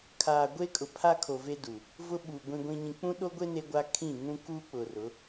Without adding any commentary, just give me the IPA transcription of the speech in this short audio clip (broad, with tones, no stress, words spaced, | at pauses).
kʰaː˨ɡʷe˦kʼʊ˨ pʰa˦kʰo˨ve˦ du˨ | vʊ˦ɓuː˨ ɡʷĩ˦ɡʷĩ˦ɲĩ˦ k͡pũ˦ɗo˦ɡʷe˦ ne˦ɡʷa˦kʰĩ˦˨ ŋũ˦kuː˦k͡pʊ˨rʊ˨˦